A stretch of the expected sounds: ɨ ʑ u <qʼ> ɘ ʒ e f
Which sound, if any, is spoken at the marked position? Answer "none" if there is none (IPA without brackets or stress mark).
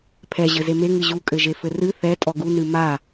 kʼ